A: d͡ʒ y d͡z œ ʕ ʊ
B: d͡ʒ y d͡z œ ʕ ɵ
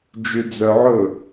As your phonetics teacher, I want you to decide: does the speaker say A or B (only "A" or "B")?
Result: B